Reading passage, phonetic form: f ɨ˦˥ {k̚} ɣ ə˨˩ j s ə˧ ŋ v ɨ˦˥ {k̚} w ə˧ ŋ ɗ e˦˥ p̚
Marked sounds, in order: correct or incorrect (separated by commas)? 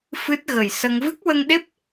incorrect, correct